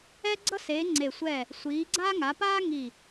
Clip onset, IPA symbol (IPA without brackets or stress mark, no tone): ɛ